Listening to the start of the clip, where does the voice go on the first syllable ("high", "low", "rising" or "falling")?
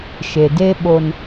low